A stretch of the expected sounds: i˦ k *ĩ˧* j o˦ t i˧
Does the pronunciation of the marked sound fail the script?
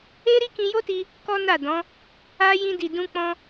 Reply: no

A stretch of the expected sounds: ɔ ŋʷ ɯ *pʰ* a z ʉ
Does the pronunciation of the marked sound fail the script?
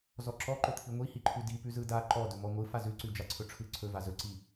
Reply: yes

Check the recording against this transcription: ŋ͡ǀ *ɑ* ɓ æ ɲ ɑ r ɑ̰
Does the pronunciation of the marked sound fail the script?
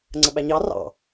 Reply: yes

